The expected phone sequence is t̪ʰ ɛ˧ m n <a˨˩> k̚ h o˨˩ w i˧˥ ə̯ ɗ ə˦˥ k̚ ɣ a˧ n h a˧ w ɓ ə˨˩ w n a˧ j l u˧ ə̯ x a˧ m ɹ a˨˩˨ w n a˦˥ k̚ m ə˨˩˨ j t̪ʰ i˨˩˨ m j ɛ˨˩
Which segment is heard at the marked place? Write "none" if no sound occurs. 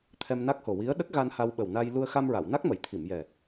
a˦˥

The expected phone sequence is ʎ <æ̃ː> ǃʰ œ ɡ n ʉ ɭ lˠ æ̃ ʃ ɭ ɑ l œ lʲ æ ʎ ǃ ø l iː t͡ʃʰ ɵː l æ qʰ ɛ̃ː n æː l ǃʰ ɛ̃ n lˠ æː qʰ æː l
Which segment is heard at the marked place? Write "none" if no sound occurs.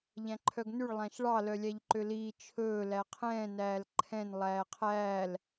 æ̃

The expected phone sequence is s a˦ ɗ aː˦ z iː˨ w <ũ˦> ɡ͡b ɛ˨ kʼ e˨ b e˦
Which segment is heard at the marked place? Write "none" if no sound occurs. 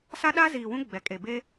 ũ˦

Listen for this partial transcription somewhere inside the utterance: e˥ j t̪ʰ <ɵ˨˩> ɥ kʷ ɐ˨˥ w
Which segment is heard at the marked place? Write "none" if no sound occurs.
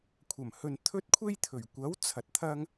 ɵ˨˩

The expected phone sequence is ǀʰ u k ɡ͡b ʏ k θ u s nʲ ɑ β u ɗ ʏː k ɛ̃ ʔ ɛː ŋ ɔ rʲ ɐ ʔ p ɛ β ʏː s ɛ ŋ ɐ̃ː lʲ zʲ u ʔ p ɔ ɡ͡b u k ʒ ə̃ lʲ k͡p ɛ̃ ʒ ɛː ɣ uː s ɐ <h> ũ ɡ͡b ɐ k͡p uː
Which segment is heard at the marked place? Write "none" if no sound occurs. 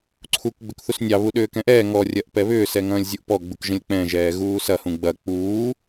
h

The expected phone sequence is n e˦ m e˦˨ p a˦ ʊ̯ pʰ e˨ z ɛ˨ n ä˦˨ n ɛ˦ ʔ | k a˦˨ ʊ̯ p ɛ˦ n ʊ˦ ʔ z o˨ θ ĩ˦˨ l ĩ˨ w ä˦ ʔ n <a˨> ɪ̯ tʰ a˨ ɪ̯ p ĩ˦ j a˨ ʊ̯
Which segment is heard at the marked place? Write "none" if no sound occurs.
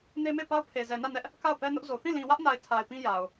a˨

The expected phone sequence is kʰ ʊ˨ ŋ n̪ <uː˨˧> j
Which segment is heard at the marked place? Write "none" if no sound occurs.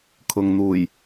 uː˨˩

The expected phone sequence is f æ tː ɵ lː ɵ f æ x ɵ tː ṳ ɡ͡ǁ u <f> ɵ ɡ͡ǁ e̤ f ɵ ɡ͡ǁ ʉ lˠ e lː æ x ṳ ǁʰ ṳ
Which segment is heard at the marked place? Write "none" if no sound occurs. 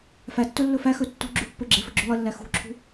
pː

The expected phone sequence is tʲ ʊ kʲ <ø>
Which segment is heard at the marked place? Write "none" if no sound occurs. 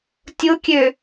ø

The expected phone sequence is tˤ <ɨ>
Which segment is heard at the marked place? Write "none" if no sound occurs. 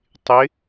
ɪ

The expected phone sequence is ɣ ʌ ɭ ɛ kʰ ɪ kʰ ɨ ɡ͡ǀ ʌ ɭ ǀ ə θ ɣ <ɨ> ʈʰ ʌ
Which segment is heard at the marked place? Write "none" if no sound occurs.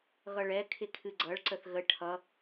ə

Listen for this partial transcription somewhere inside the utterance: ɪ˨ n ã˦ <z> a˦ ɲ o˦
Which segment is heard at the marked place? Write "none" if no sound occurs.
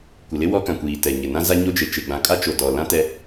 z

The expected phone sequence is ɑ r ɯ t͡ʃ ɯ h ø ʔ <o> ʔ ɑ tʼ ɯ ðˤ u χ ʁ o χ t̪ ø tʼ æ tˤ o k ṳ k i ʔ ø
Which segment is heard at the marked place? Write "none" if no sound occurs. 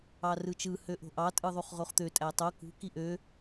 o̤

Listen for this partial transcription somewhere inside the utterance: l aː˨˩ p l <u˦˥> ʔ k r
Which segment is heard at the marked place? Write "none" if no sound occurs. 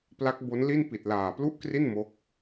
u˥˩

